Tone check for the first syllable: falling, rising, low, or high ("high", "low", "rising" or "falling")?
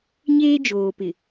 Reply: high